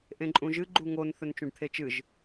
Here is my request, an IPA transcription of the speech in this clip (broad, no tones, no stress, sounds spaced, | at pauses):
ʔ ẽ ǃʼ ũ ʒ ɨ ɡ͡ǃ u ŋ o n θ ɵ n t͡ʃ ũ ɖ t̪ʰ e t͡ʃ ɨ ʒ